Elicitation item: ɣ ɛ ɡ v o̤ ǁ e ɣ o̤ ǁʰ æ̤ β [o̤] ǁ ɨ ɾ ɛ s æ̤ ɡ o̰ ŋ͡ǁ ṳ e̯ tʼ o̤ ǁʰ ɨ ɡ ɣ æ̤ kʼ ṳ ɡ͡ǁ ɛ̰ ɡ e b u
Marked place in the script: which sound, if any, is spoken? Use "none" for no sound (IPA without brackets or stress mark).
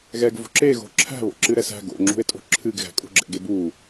o̰